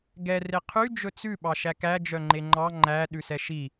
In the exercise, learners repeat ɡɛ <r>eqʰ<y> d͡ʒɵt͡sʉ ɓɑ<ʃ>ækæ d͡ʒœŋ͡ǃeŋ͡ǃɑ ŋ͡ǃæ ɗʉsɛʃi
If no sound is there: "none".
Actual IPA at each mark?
r, y, ʃ

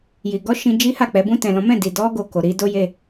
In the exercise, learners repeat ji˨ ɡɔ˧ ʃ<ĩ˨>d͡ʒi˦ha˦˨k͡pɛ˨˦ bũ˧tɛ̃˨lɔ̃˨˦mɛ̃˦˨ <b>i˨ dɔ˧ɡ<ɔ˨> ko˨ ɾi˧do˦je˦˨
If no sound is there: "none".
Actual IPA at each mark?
ĩ˧, d, o˨

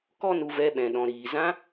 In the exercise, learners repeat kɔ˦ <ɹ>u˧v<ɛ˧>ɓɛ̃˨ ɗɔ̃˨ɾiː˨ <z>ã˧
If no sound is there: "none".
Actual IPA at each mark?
n, ɛ˧, z

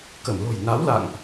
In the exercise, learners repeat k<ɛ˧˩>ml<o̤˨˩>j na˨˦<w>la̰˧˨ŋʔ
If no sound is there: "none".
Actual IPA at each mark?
ə˧˩, o̤˨˩, w

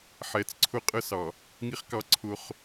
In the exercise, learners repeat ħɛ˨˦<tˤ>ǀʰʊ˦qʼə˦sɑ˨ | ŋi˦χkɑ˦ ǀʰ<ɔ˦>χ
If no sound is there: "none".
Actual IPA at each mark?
t͡s, ʊ˦

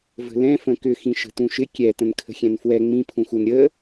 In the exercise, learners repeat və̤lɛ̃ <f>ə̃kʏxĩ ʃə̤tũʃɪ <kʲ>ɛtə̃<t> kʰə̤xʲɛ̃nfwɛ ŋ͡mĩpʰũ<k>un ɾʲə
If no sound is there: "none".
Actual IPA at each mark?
f, kʲ, n, x

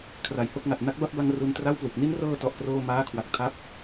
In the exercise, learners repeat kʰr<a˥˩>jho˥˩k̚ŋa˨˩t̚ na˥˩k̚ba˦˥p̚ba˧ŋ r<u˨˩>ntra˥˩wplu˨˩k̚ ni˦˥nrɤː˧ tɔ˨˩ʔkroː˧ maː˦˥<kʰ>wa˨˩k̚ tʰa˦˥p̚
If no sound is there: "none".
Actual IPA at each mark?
a˨˩, u˧, kʰ

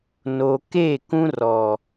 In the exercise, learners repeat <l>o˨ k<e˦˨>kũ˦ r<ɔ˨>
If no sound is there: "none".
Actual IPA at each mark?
n, e˦˨, ɔ˨

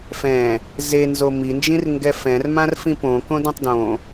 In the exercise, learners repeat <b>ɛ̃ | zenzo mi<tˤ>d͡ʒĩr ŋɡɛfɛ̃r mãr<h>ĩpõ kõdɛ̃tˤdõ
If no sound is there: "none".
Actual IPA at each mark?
f, n, f

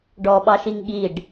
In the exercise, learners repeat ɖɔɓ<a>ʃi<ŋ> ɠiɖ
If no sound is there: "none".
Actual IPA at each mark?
ɑ, ŋ

